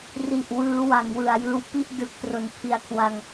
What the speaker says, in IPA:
r i˨˩ ʔ w ɯː˦˥ w a˩˦ ŋ w ɯ˨˩ a̯ j ɯː˦˥ w p i˥˩ ʔ d ɯ˦˥ k̚ t r o˨˩ n pʰ i˦˥ a̯ kʰ w a˧ ŋ

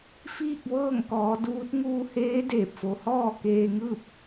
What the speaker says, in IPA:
f iː˥˨ k̚ ʋ ɤː˥˨ ŋ k ɔː˩˧ d uː˧˥ t̚ ŋ uː˧ h eː˧˥ d eː˧˩ p̚ f o˩˧ h ɔː˥˨ k eː˧ ŋ ɯː˥˨ p̚

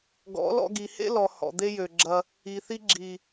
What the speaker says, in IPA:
ɡ ɔ̰˨˦ l ɔ̰˧ ɡ i˨ h ḛ˦ l ɔ˨ h ɔ̰˨ d̪ e˦ j ø˨ ɡ͡ǁ ɐ˧ | i˨ θ i˧ ɡ͡ǁ i˨

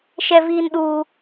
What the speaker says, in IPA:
ʃ ɛ˦ v iː˦ n ɗ uː˦

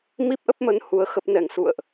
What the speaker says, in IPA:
m i˦˥ p̚ ʔ ə˦˥ p̚ m ə˨˦ n h u˨˦ ə̯ x ə˦˥ p̚ n ɛ˧˩ ŋ s ṵ˧˨ ə̯ ʔ

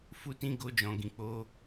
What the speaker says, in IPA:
f u˦ t ĩ˦ ɡ o˦ d͡ʒ ɔ̃˧ ɡ ĩ˧ k͡p o˧

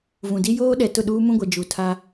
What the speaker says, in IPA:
v ũ˨ d i˦ j oː˦ ɗ ɛ˨ t ʊ˦˨ ɗ uː˦ m ũ˦ ɡʷ ɛ˨ d͡ʒ u˨ tʰ a˦

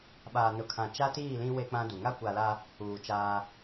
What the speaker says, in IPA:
ɓ aː˨ n ʊ˨ kʰ ã˨ t͡ʃ a˦ t iː˦˨ l ĩ˦ w e˦ k͡p ã˦ d u˨ ŋ a˦ kʷ a˨ l a˦ | uː˨ t͡ʃ aː˦

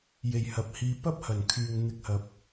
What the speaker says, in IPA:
j e˨ j h ɐ˨ p̚ h iː˧ p ɐ˥ p̚ h ɐ˨˩ n kʰ yː˨ ŋ n̪ ɪ˧ k̚ h ɐ˨ p̚

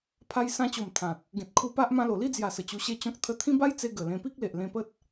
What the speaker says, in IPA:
pʰ a˦ j s ã˦ t͡ɕ o˨˩ m t̪ʰ ã˨ t̚ | ɡ ẽ˨ t̚ kʰ u˧ p a˦ ʔ m ã˧ l o˨˩ l i˥˧ d͡z j a˨˩ s ə˨˩ t͡ɕ u˧ ɕ e˦ t͡ɕ ɔ̃˦ k̚ t̪ʰ ə˧ t̪ʰ ĩ˦ b a˦ j t͡s e˧ ɡ ə˨˩ l ẽ˧ p i˦ k̚ l e˨ ʔ l ẽ˧ p ə˦ t̚

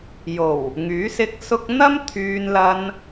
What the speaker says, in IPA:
j o˨˩ w | ŋ yː˨˥ s ɪ˧ k̚ s ʊ˧ k̚ n̪ ɐ˥ m t̪ʰ yː˧ n l ɐ˧ n

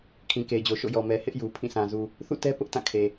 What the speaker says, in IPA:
kʰ ĩ˨ k e˨ ɪ̯ d͡ʑ o˨ ʃ o̰˦˨ j ɔ˨ m ɛ˨ h ɪ˦ ʔ j u˨ pʰ ĩ˦˨ sʰ ã˨ z u˨ | θ ṵ˦˨ t ɛ˦ p ʊ˦ ʔ t ã˦˨ kʰ e˨

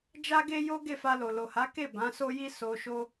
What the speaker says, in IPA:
d͡ʒ a˦ ɡ e˦ j o˦ ɡ e˦˨ f a˧ l o˨ l o˨ h a˨˦ k e˦˨ b ã˨˦ s o˦ j i˦ s o˧ ʃ o˦

